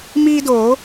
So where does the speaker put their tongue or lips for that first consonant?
lips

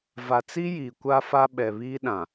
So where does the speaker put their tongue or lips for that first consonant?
lips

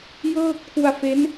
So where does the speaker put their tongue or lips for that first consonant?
palate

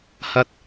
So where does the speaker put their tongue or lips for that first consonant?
throat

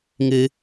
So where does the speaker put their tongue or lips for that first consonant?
velum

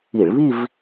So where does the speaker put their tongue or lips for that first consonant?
retroflex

